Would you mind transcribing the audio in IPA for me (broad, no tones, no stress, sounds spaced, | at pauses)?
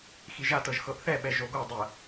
x i ʒ a t ɤ ʒ x ɤ ʔ θ ɛ ɓ ɛ ʒ o ɡ o dˤ ɜ